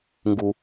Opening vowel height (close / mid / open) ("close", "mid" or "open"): close